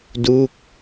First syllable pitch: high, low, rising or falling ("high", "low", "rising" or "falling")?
falling